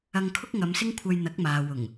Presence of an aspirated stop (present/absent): present